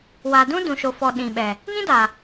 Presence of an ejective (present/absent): absent